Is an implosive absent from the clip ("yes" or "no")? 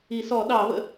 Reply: no